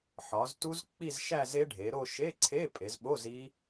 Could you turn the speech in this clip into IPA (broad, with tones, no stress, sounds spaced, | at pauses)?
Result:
ħ ɒ˩˧ z t u˦˥ z k͡p i˥˧ z ʃ æ˥˧ z e˦˥ ɖʱ e˩˧ ɾ o˥˧ ʃ e˧˥˧ ǀʰ e˧˥˧ pʼ e˩˧ z ɓ o˧˥˧ z i˦˥